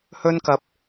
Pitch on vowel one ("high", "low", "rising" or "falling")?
high